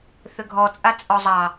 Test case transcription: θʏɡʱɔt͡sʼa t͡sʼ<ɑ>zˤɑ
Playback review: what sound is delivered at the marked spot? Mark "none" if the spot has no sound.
ɔ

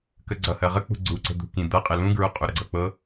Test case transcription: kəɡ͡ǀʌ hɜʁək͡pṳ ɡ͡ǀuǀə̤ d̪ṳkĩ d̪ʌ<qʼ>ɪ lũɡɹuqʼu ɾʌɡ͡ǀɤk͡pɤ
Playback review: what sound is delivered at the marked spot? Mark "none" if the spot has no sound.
qʼ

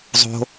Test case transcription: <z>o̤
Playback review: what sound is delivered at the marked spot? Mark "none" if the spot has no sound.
zˤ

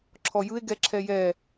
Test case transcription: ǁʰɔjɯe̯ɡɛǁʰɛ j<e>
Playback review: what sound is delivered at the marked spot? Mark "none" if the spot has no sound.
ɛ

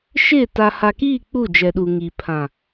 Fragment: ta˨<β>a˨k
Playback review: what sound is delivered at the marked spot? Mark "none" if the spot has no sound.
h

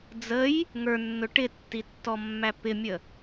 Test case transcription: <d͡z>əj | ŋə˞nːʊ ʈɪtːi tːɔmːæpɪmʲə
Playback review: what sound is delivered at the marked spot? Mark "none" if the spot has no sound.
d͡z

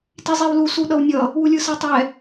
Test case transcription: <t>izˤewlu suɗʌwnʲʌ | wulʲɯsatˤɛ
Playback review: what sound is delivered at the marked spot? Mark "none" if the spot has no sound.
t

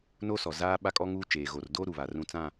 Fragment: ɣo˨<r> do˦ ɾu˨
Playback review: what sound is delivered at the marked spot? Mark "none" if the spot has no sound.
r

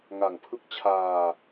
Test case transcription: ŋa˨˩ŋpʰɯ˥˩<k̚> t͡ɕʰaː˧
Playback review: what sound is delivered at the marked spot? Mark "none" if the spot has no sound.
k̚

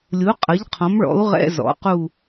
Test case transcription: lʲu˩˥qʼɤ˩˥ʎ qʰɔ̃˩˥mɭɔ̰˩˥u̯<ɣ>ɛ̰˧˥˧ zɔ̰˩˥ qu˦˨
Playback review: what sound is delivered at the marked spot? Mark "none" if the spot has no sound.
ʁ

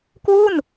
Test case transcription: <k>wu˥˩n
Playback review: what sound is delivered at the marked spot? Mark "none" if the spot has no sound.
k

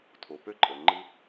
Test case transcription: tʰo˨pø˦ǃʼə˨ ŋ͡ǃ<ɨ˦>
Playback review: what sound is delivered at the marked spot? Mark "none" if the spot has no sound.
ɨ˦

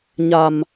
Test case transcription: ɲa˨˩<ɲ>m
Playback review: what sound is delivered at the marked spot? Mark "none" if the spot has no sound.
none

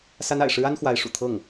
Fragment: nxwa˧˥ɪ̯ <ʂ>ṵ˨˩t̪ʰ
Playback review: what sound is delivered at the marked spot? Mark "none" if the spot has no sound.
ʂ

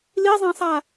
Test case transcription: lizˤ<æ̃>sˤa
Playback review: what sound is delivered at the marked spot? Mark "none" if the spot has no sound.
æ̃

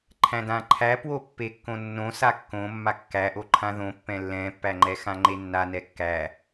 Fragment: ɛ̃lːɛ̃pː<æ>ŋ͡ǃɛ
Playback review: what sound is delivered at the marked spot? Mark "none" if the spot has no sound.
æ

